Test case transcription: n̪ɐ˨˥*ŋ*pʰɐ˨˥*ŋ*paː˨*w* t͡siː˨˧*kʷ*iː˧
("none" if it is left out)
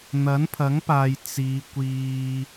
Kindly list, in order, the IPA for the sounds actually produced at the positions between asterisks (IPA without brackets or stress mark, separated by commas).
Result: n, ŋ, j, kʷ